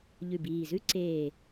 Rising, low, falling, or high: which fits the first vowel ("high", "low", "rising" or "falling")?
low